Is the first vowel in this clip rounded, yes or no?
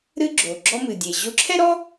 no